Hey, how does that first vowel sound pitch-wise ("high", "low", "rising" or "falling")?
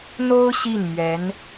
high